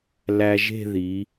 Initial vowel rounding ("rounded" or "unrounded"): unrounded